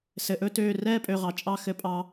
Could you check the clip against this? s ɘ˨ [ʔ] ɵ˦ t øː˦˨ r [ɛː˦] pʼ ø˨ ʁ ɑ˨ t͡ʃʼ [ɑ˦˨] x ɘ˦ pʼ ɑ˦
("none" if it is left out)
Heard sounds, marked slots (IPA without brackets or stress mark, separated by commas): ʔ, ɛː˦, ɑ˦˨